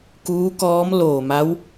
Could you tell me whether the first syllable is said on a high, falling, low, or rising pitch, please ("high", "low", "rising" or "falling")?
rising